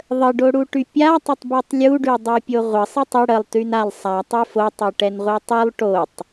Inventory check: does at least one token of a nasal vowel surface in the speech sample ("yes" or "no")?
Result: no